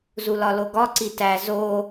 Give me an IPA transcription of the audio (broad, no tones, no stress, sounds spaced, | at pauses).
z u l ɒ l o ɡ ɒ ǀ i t æ z o